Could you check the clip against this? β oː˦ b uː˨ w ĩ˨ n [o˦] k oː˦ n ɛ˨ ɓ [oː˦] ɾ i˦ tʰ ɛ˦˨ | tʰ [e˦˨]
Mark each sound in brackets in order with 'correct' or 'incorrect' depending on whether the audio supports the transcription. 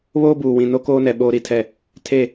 correct, correct, correct

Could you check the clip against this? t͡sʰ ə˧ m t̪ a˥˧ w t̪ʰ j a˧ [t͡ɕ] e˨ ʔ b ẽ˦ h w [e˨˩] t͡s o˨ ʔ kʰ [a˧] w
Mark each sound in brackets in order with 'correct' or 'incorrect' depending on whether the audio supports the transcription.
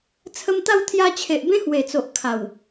incorrect, correct, incorrect

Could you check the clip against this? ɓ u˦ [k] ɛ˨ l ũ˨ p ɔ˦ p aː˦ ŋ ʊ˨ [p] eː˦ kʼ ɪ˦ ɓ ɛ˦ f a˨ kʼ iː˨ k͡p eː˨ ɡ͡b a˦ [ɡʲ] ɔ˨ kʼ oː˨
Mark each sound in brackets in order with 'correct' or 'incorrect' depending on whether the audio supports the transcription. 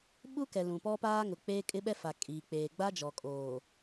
correct, incorrect, incorrect

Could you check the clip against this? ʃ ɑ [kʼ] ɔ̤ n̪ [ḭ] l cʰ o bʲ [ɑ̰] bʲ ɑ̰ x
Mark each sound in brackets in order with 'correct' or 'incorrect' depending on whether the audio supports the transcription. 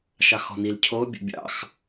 incorrect, incorrect, incorrect

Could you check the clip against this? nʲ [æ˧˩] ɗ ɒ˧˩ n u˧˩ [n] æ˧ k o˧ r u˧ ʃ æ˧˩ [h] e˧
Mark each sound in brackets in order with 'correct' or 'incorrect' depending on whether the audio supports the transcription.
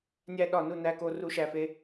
incorrect, correct, incorrect

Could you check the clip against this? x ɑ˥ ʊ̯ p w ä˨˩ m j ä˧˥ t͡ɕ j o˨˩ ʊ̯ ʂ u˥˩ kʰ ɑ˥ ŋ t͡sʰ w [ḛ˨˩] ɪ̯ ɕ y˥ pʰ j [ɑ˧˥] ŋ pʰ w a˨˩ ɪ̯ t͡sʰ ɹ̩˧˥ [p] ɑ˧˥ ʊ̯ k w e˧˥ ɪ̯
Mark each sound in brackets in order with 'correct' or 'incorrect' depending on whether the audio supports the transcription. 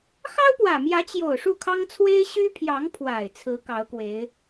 incorrect, correct, incorrect

